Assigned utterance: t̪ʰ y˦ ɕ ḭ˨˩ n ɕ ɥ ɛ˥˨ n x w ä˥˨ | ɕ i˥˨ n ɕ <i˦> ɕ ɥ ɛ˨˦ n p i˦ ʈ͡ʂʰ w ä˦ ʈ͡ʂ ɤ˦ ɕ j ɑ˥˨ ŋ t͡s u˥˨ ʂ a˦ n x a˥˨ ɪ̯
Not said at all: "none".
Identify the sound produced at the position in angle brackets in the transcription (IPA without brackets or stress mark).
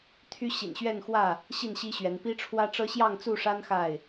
i˦